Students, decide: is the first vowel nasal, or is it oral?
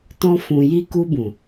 nasal